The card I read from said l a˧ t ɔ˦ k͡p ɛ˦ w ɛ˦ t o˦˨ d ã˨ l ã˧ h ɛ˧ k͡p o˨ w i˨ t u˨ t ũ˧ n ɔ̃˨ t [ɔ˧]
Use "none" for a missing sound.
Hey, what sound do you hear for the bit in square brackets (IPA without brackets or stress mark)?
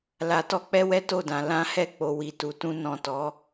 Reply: ɔ˨˦